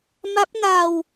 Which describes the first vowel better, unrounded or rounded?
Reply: unrounded